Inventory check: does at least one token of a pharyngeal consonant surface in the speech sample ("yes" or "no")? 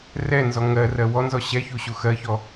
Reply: no